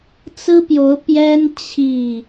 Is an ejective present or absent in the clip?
absent